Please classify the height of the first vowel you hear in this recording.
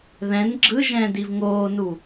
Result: mid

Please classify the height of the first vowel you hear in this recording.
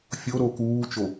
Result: mid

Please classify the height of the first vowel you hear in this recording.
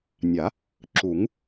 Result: low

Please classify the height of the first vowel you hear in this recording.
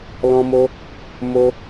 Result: mid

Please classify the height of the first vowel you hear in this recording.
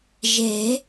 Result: mid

